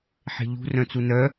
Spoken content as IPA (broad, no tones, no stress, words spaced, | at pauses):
ħe̤ʎṳ rœ̃t͡sunœ